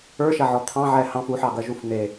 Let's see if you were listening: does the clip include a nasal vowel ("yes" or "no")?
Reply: yes